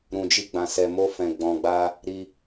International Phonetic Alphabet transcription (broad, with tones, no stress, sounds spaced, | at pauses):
ɾ ũ˨ d͡ʒ i˧ ɡ͡b ã˨ s ɛ˨ m o˧ f ɛ̃˨ ɡ͡b ɔ̃˨ ɡ͡b a˧ | ɾ i˧